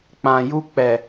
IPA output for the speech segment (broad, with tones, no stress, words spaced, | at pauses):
k͡pã˨ ju˧k͡pɛ˨